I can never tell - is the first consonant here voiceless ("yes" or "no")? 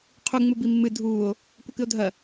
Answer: yes